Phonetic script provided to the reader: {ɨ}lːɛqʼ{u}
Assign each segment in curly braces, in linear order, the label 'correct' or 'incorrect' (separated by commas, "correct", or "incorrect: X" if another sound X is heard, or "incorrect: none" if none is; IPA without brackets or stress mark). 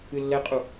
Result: correct, correct